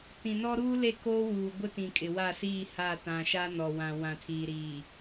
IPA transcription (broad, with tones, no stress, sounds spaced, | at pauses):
t ĩ˨ n ɔ˦ ɾ uː˦ l e˦˨ k oː˦ w uː˨ ɡʷ ɪ˦ t ĩ˨ kʼ ɪ˨ w a˦˨ s iː˦˨ h a˦˨ t ã˨ ʃ a˦ n ɔ˨ w ã˨ w ã˨ tʰ iː˨ ɾ iː˨